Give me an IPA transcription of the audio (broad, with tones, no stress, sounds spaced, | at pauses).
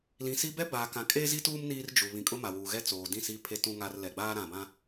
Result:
l ĩ˨ s i˦ b ɛ˦ b aː˨ k ã˨ kʼ eː˦ z i˦ t uː˦ m n iː˦ r d͡ʒ u˨ β ĩ˨ kʼ ʊ˦ m a˨ w uː˨ ɣ ɛ˦ t͡s oː˨ d ĩ˦˨ s i˦ pʰ e˦ t ũ˦ ŋ aː˦ r l ɛ˨ ɡ͡b aː˦ ɾ ã˨ b ã˦